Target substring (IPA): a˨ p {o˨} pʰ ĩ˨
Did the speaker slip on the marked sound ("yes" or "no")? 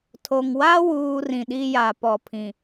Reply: yes